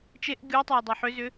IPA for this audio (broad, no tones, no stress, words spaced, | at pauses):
t͡ʃeʔ ɡʲutˤʌy̯ dˤuħʏzʏ